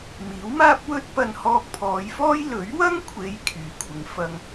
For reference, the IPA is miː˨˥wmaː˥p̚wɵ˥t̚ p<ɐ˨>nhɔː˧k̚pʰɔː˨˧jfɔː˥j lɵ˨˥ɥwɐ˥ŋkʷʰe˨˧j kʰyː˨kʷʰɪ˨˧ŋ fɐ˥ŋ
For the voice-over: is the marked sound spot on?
no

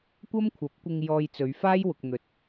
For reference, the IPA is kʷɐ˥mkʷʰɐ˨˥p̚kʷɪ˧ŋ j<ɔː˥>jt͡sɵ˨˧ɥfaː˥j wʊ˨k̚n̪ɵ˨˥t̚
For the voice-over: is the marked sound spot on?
no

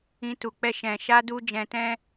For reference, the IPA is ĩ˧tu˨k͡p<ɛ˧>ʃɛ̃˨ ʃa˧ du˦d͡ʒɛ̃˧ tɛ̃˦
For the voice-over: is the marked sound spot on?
yes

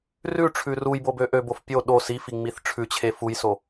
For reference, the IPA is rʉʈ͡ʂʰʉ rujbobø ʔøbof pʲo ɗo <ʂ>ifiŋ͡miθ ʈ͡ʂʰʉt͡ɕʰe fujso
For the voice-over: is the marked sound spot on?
no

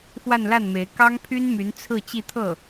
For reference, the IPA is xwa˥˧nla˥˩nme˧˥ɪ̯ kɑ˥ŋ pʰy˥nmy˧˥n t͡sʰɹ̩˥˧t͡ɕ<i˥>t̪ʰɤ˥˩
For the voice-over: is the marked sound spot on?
no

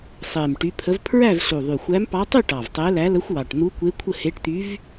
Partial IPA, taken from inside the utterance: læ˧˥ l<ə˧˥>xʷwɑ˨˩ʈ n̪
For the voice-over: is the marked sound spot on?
yes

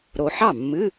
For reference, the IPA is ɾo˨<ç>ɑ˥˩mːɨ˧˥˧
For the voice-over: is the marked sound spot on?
no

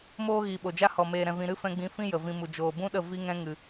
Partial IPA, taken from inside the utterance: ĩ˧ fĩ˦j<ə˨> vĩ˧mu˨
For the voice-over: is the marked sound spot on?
yes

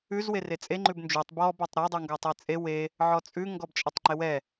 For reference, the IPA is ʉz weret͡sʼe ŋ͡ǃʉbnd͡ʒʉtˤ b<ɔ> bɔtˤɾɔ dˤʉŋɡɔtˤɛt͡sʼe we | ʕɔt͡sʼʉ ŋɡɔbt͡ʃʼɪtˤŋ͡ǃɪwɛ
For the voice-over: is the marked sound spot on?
yes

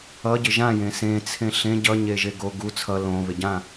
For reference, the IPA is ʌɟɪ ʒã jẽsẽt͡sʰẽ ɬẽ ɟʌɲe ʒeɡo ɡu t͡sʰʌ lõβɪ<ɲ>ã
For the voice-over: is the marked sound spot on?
no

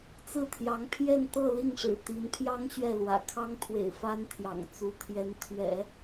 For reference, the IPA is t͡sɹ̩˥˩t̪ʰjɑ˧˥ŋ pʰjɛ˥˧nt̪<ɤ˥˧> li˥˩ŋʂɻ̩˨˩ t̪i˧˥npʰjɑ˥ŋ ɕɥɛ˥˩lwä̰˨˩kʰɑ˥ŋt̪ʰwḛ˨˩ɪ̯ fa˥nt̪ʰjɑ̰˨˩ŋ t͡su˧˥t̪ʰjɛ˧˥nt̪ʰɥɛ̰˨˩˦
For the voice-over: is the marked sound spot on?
yes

